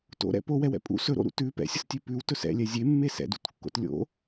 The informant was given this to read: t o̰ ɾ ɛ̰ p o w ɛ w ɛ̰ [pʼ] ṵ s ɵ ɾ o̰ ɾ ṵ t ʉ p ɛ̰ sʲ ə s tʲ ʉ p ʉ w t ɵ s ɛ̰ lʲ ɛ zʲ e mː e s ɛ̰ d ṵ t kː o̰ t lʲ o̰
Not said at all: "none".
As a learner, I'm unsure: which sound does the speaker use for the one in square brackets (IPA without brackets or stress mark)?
pʼ